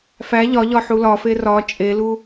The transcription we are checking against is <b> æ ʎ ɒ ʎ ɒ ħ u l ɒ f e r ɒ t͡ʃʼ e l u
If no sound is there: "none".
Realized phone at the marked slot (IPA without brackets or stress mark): f